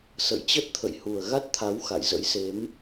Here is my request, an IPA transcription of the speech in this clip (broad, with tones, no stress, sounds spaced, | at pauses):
s ə̰˧˨ j t͡ɕ ə˦˥ t̚ t̪ʰ ə̰˧˨ j h u˨˩ ə̯ ɣ a˦˥ t̚ t̪ʰ a˨˦ w x a̰˧˨ j z ə̰˧˥ j s e˨˦ m